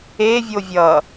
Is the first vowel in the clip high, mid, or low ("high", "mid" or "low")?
mid